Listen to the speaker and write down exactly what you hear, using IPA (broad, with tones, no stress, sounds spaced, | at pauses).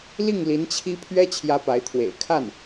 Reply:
l i˥˩ ŋ l i˧˥ n t͡ɕʰ i˥ pʰ ɥ ɛ˥ t͡ɕʰ j ä˥ p a˧˥ ɪ̯ t̪ʰ w ḛ˨˩ ɪ̯ kʰ a˥˩ n